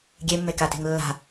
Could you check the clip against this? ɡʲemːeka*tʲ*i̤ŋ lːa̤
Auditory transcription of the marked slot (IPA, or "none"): t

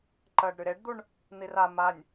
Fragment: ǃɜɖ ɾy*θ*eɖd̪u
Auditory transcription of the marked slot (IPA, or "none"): ɾ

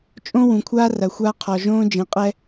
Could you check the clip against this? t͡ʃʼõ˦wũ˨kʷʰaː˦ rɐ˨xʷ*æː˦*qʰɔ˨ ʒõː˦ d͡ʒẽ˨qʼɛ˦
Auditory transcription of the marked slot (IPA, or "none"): aː˦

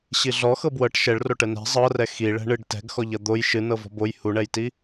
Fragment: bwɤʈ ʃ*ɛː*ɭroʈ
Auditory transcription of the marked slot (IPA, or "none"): ɛ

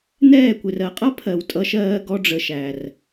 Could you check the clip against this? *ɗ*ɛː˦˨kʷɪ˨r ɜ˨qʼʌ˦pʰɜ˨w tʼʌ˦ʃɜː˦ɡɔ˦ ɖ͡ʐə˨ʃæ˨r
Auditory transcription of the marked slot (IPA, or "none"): n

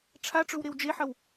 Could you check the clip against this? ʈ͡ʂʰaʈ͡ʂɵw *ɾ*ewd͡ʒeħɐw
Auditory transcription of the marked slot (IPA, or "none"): ɾ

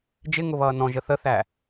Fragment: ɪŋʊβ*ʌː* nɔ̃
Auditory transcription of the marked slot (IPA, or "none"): ʌː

